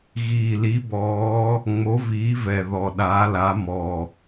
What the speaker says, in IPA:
ɣ iː˨˩ l i˨˦ b ɔː˨˦ | ŋ͡m o˨˦ v iː˨˦ v ɛ˨˩ ð ɔ˨˩ ɗ aː˨˦ l a˨˦ m ɔ˨˩

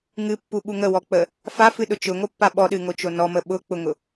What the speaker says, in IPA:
ŋ ɨ pː u ɓ u ŋ ə w ɔ k͡p ə | f a f ɨ ɗ ʊ t͡ʃ ʊ ŋ o pː a ɓ ɔ ɗ ɨ ŋ o t͡ʃ o n ɔ m ə ɓ ʊ k͡p ʊ ŋ ʊ

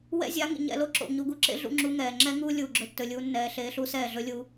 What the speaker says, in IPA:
w ɛ̰˦ zʲ a˨˦ ŋ ḭ˨ ɲ ɛ̰˧ l o˦ ǁ o̰˨ ɲ u˧ ɡ u˧ ǁ ḛ˦ ɮ ṵ˧ ŋ͡ǁ uː˧ ŋ ɛː˨ ŋ͡ǁ ɛː˦ ŋ uː˦ lʲ uː˨ ɡ͡ǁ ɵ˧ tː ɵ˨ lʲ uː˧ nː ɛː˧ ɬ eː˧ ɬ u˦ s ɛː˦˨ ɮ ɵ˦ lʲ uː˧

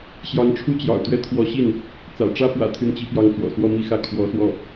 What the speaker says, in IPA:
ɕ j ɑ˧˥ ŋ ʈ͡ʂʰ u˥ t͡ɕ j ɑ̰˨˩ ʊ̯ t̪ ɥ ɛ˥ t̪ʰ w ɔ˧˥ ɕ i˥˩ n | t͡s ä̰˨˩ ʈ͡ʂ ä˥ p w ä̰˨˩ t̪ʰ y˥˩ n t͡ɕ i˥ p j ɑ˥ ŋ t͡s w ɔ̰˨˩ s w ɔ˥˧ m i˥˧ x ä˥˩ kʰ w ɔ˧˥ s w ɔ˥˩

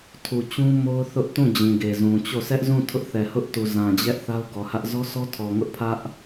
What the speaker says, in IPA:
tʰ u˨ t͡ɕ ũ˦ m o˦ ʊ̯ θ ʊ˦ ʔ t ũ˦˨ d͡ʑ ĩ˨ ɡ e˨ z ũ˨ t͡ɕ o˦˨ sʰ ɛ˦ ʔ z ũ˦˨ tʰ ʊ˦ ʔ θ ɛ˨ h ʊ˦ ʔ t u˨ z ã˨ d͡ʑ ɛ˦ ʔ θ a˦ ʊ̯ ɡ ɔ˨ h ä˦ ʔ z ɔ˦ sʰ ɔ˦ tʰ ɔ˨ ŋ ʊ˦ ʔ pʰ ä˦ ʔ

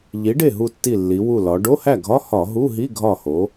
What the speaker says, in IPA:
ʎ i˩˥ ɖ e˥˩ ɦ u˧˩ tː i˧˩ lː i˩˧ w u˧˩ l ɒ˩˧ ɖ o˧˥˧ h æ˥˩ ɡʱ ɒ˧˥˧ h ɒ˧˩˧ ɦ u˧˥˧ ɦ i˧˥˧ ɡʱ ɒ˥˩ h o˩˥

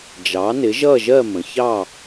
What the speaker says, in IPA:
d͡ʒ ɑ˩˥ n ɪ˩˥ ʒ ʌ˥˨ ʒ ɜ˥˨ m ə̃˩ ç ɑ˥˨

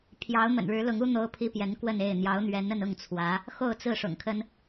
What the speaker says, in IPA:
pʰ j ɑ˧˥ ʊ̯ m ə̰˨˩ n ɻ ɻ̩˧˥ l ʊ˧˥ ŋ u˥ n̪ o˥ ʊ̯ pʰ i˥ p j ɛ˧˥ n k w ə˥˧ n e˥˩ ɪ̯ n̪ j ɑ˧˥ ʊ̯ n̪ ɥ ɛ˧˥ n ə˥˧ n ʊ˥˩ ŋ t͡sʰ w ä˧˥ | x o˥˧ ʊ̯ t͡s ɹ̩˥˩ ʂ ʊ̰˨˩ ŋ kʰ ə˥ n

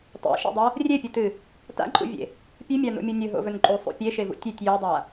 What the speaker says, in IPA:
tˤ ḛ ʃ ḛ dˤ ɐ | rʲ e pʲ ɨ t ɨ | t a̰ ǃʼ ṵ vʲ ḛ | pʲ ʉ mʲ a n o̰ mʲ o nʲ ɵ ɦ o̰ v ɵ n ǃʼ u sˤ ṵ pʲ e ʃ e v ṵ tʲ ʉ tʲ j o dˤ a

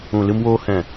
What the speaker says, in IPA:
ũ˨ l ɨ˧ m w oː˧ h ɛ̃˨

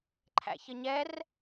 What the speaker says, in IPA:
ǃʰ æ̰ ç ə ɲ ɛ r

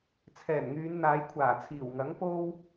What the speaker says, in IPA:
t͡sʰ ɛː˨˩ n ŋ yː˨˧ n n̪ aː˨˧ j kʷʰ aː˨˩ t͡sʰ iː˨˩ w ŋ ɐ˨˥ ŋ p o˥ w

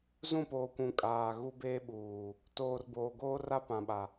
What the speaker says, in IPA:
z ũ˦˨ p oː˨ kʷ ũ˨ kʼ aː˨ ɣ u˦ b eː˦ ɓ uː˨ | t oː˨ r b oː˨ ɡ oː˦ r a˦ p ã˨ ɓ a˨

